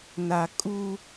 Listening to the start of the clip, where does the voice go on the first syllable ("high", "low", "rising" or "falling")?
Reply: low